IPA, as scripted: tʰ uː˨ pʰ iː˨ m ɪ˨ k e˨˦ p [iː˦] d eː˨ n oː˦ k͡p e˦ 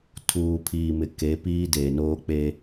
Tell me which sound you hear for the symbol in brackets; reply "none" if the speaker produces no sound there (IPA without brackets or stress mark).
iː˦